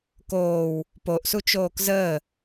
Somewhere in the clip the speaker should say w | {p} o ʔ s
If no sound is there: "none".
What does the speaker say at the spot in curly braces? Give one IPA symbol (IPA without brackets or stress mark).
p